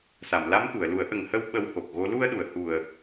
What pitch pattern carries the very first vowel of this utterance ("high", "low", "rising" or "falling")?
low